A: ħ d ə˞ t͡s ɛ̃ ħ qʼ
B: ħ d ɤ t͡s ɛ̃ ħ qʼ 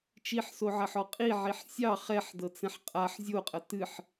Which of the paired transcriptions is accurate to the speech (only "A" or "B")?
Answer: B